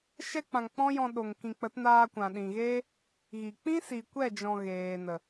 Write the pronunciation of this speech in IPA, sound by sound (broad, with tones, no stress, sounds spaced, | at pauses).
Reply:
ʃ ɛ˧ k͡p ã˨ ŋ k͡p ɔ̃˦ j ɔ̃˧ ɗ o˨ ŋ k ĩ˨ k͡p ə˨˦ t n aː˧ kʷ ã˨ ɗ ĩ˨ ɣ eː˦ | ɣ i˨ k͡p ĩ˦ s i˨ kʷ ɛ˦˨ d͡ʒ ɔ̃˨ ɣ eː˨ n ə˨